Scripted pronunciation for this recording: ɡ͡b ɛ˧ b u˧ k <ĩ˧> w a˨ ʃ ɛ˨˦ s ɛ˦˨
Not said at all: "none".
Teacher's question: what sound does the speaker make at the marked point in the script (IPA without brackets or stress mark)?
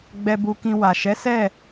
ĩ˧